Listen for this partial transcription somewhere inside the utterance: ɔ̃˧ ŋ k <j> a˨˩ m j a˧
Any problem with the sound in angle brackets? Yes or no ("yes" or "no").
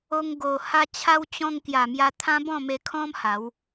no